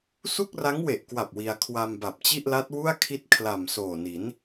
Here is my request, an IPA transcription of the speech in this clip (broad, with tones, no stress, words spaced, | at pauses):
su˥˩k̚ra˦˥ŋwe˨˩ʔkwa˨˩p̚ wi˧a̯ kʰwa˧mba˨˩p̚t͡ɕi˥˩ʔla˦˥t̚ wu˥˩a̯kʰi˦˥t̚ kʰla˨˩m soː˨˩ni˩˦n